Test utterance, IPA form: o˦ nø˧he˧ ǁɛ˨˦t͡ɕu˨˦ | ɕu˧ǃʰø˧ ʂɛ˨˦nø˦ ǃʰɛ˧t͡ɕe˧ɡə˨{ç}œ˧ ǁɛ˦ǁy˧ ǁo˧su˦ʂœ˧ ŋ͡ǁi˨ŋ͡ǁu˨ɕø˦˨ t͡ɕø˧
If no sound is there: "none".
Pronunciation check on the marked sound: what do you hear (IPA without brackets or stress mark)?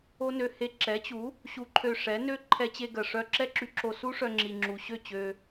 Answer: ʂ